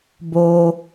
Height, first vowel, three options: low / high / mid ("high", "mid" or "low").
mid